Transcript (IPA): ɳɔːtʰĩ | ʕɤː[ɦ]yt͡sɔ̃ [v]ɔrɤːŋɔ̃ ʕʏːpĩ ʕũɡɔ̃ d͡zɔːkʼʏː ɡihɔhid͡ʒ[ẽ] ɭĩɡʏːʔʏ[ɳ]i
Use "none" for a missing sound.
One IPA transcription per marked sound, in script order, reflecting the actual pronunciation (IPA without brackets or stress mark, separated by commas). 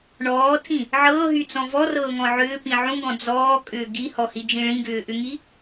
ɦ, v, ĩ, ŋ